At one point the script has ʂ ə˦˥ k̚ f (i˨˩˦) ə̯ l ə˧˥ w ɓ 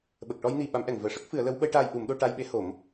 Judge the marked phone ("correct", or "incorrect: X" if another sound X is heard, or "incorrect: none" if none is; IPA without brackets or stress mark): incorrect: ɨ˨˩˦